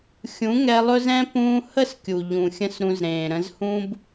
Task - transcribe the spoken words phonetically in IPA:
xʲ ũ˨˦ ŋ ɛ˧ lˠ ɵ˦ z ɛ̃˦ p ũː˦ h ə˦˨ s kʲ u˨ ʎ ũ˨ xʲ ə̃˦ s ɾ ũ˧ z ɾ ẽː˨ ɾ ə̃˧ z h ũ˦ b

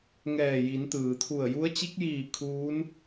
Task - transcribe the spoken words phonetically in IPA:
ŋ ɛː˧˩ j i˩˧ n t̪ ɯː˩ t̪ʰ u˧˩ ə̯ j u˧˥ ə̯ t͡ɕ i˧˥ k̚ j iː˧˩ kʰ uː˧˥ n

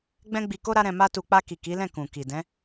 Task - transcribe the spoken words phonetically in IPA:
ɡ͡b ɛ̃˦ ɡ͡b i˧ k o˦ ɾ a˦ ɾ ɛ̃˧ m a˦ t u˧ k͡p a˧ k i˨ k i˨˦ l ɛ̃˦˨ k ũ˨ k i˨ d ɛ̃˨˦

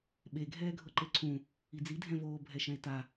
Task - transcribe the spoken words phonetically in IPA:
ɓ e ɡʱ ɛː ɡʱ ɤ ǃ e ǀʰ ũ | i d͡z i dʱ ɛ̃ v oː bʱ ɛ ʃ ɛ̃ e̯ t a

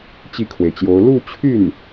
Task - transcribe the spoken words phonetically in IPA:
t͡ɕ i˥˩ kʰ w e˩ ɪ̯ t͡ɕ j o˧˥ ʊ̯ l u˥˧ t͡ɕʰ y˥˩ n

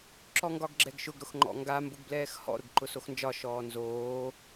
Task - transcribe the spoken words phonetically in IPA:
ǁ ɔ ŋ ɡ ɒ ɡ ɡ͡ǁ ɛ ɡ ʃ ʊ ɡ ɾ ʊ x ŋ͡ǃ ɔ̰ ŋ ɡ a m b ʊ ɡ b l ɛː x h ɔ̰ ɾ ʊ ɡ ǃ ʊ s o x n d͡ʒ ɒ ʃ ɔː n z oː

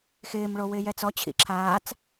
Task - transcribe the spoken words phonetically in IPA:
x ɪː m ɭ o w ɪː j ɛ t͡s ɔ t͡ɕʰ ḭ ǁʰ aː t͡s

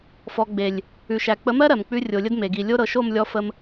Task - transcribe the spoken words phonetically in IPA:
f ɔ˨ ɡ͡b e˨ lʲ | ʉ˨ ʃ æ˨ k͡p ə˨˦ m ɜ˦ ɾ ɜ˨ m k͡p ʉ˦ rʲ o˨ lʲ ə˦ d m e˨ ɡ i˨ lʲ o˦ ɾ ɤ˨ ʃ o˦˨ m lʲ ɔ˦ f ə˦ m

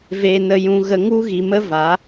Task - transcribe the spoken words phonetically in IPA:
v e˨ n ə˨ j ũ˨ ɣ ə˧ ŋ u˦ ɣ i˨ m ə˦ v a˨˦

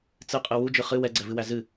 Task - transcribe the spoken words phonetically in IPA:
t͡s ɨ qʼ ɨ w u d͡ʒ ɨ χ ɨ w ɛ ɡ͡ǀ ɛ v ɨ w æ z ɨ

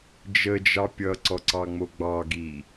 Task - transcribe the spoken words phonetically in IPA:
d͡ʒ ə d͡ʒ ɑ pʲ ʌ ǀ ɔ ǀ ɑ ŋ͡m o ɡ͡b ɑ ɡ i

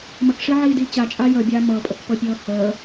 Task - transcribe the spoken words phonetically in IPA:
m ə k ʂ i ʕ iː d iː t͡ɕ a t͡ʃʼ aː j ə bʲ aː m ɤ pʼ ə k p ɤ pʲ ɤː h əː

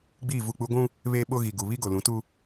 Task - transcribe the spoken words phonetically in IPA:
ɡ͡b iː˦˨ v u˦˨ k͡p u˦ ɡʷ ũ˦ | β eː˦ ɓ o˦ ɣ i˨ ɡ u˨ β i˦ ɡ o˨ l ũ˨˦ t u˦

